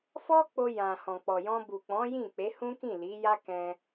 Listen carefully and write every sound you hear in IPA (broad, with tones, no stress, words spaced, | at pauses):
fɔ˧ k͡po˧jã˨ hɔ̃˨k͡pɔ˨jɔ̃˧ bu˨k͡pɔ̃˨˦ jĩ˦˨k͡pe˨˦hũ˦kĩ˦˨ li˨˦ja˦kɛ̃˧